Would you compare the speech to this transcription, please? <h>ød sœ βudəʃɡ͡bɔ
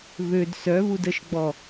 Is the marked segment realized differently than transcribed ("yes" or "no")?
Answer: yes